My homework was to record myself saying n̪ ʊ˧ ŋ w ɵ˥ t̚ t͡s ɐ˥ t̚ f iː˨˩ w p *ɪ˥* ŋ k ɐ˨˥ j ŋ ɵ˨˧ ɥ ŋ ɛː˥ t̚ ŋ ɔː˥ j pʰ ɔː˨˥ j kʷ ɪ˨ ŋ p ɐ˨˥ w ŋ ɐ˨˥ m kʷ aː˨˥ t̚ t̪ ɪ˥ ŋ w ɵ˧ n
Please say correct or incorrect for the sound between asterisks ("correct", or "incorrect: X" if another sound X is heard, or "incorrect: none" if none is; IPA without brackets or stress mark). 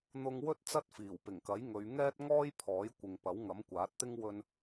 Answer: incorrect: ɪ˨˩